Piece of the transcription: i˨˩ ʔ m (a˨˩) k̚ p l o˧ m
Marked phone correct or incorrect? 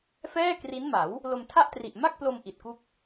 incorrect